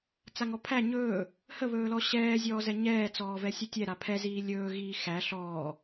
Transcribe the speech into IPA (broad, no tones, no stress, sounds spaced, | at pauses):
t͡s a ŋ ɔ pʰ æ ɲ ɵː | h ə β ɵː l ɔ ɕ ɛː zʲ ɔː z ɛ ɲ ɛː t͡s ɔː v ɛ sʲ ɵ tʲ ɛ ɾ a pʰ ɛ z iː lʲ ɵː ɣ iː x æ ɬ ɔː